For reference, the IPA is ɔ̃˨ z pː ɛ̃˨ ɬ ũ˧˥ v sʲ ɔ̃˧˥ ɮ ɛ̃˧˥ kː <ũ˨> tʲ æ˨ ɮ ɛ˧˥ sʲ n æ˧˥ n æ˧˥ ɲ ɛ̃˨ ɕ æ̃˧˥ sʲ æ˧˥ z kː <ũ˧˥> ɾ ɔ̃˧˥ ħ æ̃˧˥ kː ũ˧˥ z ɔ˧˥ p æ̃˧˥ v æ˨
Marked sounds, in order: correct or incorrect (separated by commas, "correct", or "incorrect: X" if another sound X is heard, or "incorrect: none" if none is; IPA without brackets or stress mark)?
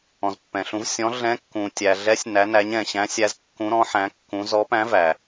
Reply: correct, correct